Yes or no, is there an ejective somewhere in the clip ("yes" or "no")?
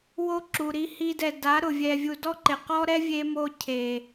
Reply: no